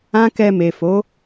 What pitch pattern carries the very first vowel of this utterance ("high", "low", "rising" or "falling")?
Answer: high